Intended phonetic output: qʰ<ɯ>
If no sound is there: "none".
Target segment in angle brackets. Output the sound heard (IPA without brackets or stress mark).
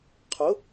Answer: ʊ